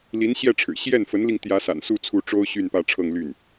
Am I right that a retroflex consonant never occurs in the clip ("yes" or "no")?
no